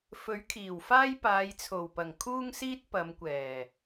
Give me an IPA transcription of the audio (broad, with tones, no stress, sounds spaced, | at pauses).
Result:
f ɵ˨˥ ɥ kʰ iː˨˩ w f aː˥ j p aː˨˧ j t͡sʰ o˨˩ w p ɐ˨˩ ŋ kʰ uː˥ ŋ s iː˥ t̚ p ɐ˨˧ m kʷ ɛː˨˩